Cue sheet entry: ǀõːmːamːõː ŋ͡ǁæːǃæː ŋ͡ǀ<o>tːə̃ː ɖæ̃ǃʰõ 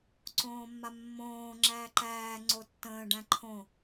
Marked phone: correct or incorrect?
correct